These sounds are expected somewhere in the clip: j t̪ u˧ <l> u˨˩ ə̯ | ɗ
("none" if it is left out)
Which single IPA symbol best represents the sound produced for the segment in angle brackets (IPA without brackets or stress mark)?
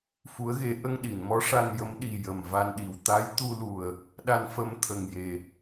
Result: l